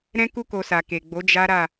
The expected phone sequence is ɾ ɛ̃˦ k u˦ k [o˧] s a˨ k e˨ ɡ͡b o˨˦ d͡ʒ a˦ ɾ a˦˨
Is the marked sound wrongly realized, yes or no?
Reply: no